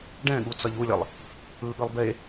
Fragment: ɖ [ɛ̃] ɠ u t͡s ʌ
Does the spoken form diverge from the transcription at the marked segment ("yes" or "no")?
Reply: no